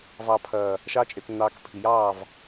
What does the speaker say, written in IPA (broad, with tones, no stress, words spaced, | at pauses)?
vɑ˨pʰɐː˨ | ʃɑ˧t͡ʃʼe˨tnːɑː˨k pʰi˨jɑː˦˨v